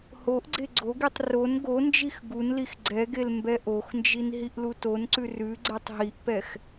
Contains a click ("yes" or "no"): yes